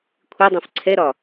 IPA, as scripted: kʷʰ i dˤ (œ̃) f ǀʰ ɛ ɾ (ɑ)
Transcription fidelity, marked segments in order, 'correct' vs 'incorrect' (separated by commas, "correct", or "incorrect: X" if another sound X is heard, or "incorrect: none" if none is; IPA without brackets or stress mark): correct, incorrect: ɒ